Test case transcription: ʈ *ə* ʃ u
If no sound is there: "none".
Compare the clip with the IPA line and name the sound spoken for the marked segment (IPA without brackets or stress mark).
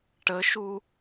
ə